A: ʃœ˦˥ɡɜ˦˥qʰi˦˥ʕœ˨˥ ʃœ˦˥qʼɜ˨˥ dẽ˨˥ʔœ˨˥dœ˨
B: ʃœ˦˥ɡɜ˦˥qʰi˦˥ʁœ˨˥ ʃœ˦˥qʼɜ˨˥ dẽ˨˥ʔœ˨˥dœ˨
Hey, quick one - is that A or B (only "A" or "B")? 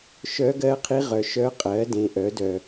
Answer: B